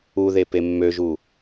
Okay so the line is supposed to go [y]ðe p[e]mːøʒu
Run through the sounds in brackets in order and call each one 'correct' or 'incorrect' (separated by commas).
incorrect, correct